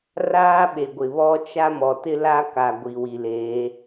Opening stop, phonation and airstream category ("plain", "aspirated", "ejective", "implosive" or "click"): implosive